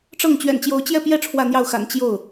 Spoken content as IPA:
ʈ͡ʂ ɤ˥˩ ŋ t͡ɕ ɥ ɛ̰˨˩ n t͡ɕ j o˧˥ ʊ̯ t͡ɕ j ɛ˥˧ p j ɛ˥˧ ʈ͡ʂʰ w ä˥˧ n̪ j ɑ˥˩ ʊ̯ x a̰˨˩ n t͡ɕ j o˥˩ ʊ̯

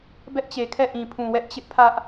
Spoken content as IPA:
b ɛ˦ ʔ t͡ɕ e˨ kʰ ɛ˦˨ ʔ ĩ˨ pʰ ũ˨ w ɛ˦ ʔ t͡ɕ ɪ˦ ʔ pʰ ä˦ ʔ

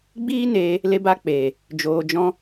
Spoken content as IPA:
ɡ͡b iː˦ n eː˧ | l e˧ b a˧ k͡p eː˨ | d͡ʒ oː˧ d͡ʒ ɔ̃˦

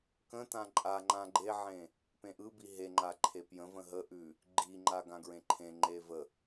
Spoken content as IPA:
k ə̃ t ã ǃʼ a ŋ͡ǃ ã ɡ͡ǃ e ʕ ẽ | p ẽ ʔ ɯ b i ɦ e ŋ͡ǃ a ǃʰ e p j ə̃ v ə̃ ɦ ə ʔ ʉ | ɡ͡ǃ i ŋ͡ǃ a ɡ ã ɡ ɹ ẽ ǃʰ ẽ ŋ͡ǃ e v ə

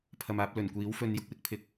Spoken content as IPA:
pʰ ɐ˨ m aː˨˥ p̚ l ɵ˨˩ n kʷ iː˨˥ w f ɵ˧ n j ʊ˥ k̚ w ɪ˥ k̚ pʰ ɪ˥ k̚

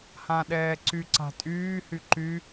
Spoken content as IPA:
h ã ɗ ɛː ǀ y ǀ a̤ tʼ yː h y ǃ y

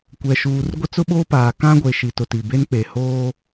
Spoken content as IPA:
kʷ ɛ˨ ʃ uː˨ r ɡʷ ɪ˦ t͡s ʊ˦ ɓ oː˦ p aː˨ k ã˦ ɡʷ e˨ ʃ i˨ t ʊ˨ t i˨ b e˦ n k͡p e˨ h oː˦

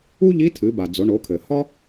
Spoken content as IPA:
u˥ ʎ i˧˥ tʰ ɨ˩˧ b a˩ d͡z o˩˧ ɳ o˩˧ kʰ ɘ˩ h ɒ˥

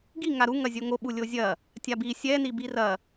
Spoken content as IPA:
ɡ i ŋ a ɾ u ŋ ɐ zʲ o ŋ o ɓ u lʲ o zʲ ɐ | tʲ a b i sʲ ɛ n i b i r ɐ

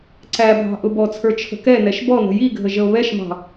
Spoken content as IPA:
ǀ æ bʱ ɑ̤ ʔ ʊ b ɔ t͡sʰ ə˞ t͡ʃʰ ə̤ k ɛ n ɛ ʃ b ɔ n ə̤ j i ɡʱ ə ʒ ə o̯ β ɛ ʃ m ɑ̤

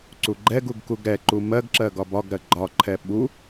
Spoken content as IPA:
ǀ u ɡ͡ǃ ɛ ɡ u ɡ k u ɡ ɾ ɛ ǃ u m ɜ ɡ ǁ ɜ ɡ ɒ b ɒ ɡ ɾ ɜ ɡ͡ǃ ɒ ǃʰ ɛ ɓ u

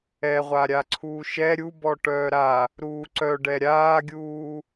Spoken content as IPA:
ɛ ʁʷ a ɾʲ a ǀʰ uː ʃ ɛ ɾʲ u b ɔ ʈ œː ɾ a | ɾ uː ǀ œ ɖ ɛ ɾʲ aː ɡʲ uː

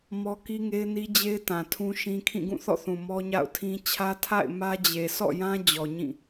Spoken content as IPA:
m ɔ˦ k i˦ ŋ e˦ ɪ̯ n i˦ d͡ʑ e˦ ɪ̯ t ã˨ tʰ ũ˦ ʃ ĩ˦ kʰ ĩ˦˨ ɡ ũ˦˨ θ ɔ̰˦˨ θ ũ˨ m ɔ˦ ɲ a̰˦˨ ʊ̯ tʰ ĩ˦ t͡ɕʰ ä˦ tʰ a̰˦˨ ɪ̯ m ä˦ d͡ʑ e˨ s ɔ̰˦˨ j ã˦ d͡ʑ ɔ˨ ɲ ĩ˦˨

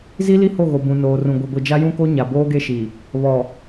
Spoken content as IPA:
z i˦ l i˦ h o˦˨ ɣ o˨ b ũ˨ n oː˨ r ũ˨ ɡʷ e˨ ɡʷ i˨ d͡ʒ a˦ j ũ˦ k o˦ ɲ a˨ b oː˦ ɡ e˦ ʃ i˨ | β ɔ˨

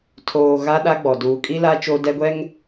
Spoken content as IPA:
tʰ oː˨ ɣ a˦ ɗ a˦ ɡ͡b ɔ˨ d uː˨ kʼ i˦ l a˦ t͡ʃ o˦ d ɛ˦ ɡʷ ɛ˦ ŋ

